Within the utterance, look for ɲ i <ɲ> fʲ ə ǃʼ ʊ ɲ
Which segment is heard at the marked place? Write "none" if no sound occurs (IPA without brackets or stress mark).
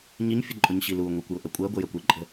ɲ